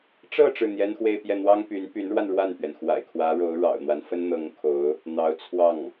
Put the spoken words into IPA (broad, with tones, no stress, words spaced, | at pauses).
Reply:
ʈ͡ʂɤ˥˧ ʈ͡ʂɻ̩˥˩n̪jɛ˥nxwe˥˧ɪ̯ pjɛ˥˩n̪wɑ˥ŋ py˧˥npy˧˥nɻwa˧n ɻwa˥˩npɥɛ˩nxwa̰˨˩ɪ̯ kʰwä˧˥ ɻo˧˥ʊ̯ ɻɑ̰˨˩ʊ̯n̪wa˦n fə˥nn̪ɤ˧˥ŋkʰo˧˥ʊ̯ | n̪ɑ˧˥ʊ̯t͡sʰwɑ˥˩ŋ